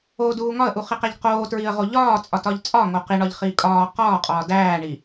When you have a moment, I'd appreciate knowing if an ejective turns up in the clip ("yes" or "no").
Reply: yes